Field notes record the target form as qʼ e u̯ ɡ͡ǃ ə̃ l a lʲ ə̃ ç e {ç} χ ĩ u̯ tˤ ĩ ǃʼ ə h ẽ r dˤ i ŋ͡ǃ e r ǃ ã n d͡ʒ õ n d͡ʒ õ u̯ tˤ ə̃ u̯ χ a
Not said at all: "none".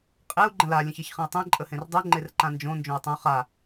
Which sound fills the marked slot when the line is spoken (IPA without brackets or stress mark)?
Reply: ç